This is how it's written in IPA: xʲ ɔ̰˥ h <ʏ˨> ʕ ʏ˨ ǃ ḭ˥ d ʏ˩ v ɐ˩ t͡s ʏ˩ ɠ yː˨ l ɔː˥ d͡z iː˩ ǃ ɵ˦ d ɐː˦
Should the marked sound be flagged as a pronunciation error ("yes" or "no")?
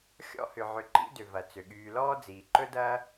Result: yes